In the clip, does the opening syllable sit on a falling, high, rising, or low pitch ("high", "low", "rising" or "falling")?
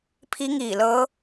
rising